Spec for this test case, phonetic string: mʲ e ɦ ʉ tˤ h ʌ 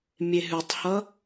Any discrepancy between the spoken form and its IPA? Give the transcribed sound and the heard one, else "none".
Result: none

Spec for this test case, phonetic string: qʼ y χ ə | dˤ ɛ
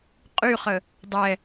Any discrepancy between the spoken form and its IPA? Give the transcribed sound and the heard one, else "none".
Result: none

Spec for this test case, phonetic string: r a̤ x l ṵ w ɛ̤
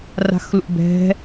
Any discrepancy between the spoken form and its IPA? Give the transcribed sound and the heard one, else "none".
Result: w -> b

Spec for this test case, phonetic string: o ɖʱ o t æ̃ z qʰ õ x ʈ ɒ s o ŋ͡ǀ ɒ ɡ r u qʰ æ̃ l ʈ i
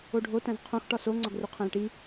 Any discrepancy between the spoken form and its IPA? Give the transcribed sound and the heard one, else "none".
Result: none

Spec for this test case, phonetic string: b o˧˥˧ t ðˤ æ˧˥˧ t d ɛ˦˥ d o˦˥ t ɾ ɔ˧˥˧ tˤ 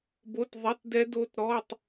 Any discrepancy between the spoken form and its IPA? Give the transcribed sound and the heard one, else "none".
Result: æ˧˥˧ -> ɛ˧˥˧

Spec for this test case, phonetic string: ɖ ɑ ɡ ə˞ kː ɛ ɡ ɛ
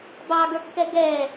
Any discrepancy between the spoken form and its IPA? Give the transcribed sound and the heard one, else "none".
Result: ɖ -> b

